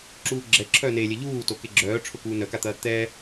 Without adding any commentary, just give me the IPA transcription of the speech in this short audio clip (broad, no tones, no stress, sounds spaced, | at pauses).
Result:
ǁ uː ɡ͡ǁ ɛ ǁʰ œː n e lʲ ɛ ʎ uː t o k e ɡ͡ǁ œː ʈ͡ʂʰ ʊ k uː n œ k a t̪ ɐː t̪ ɛ